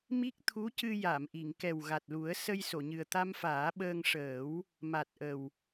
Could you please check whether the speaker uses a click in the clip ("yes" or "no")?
no